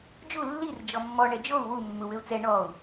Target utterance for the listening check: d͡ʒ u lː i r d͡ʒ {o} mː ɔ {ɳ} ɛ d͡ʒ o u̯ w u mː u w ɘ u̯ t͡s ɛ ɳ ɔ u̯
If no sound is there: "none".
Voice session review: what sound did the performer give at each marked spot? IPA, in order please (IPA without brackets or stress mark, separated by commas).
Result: ɔ, ɳ